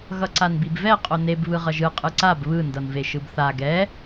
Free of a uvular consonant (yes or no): no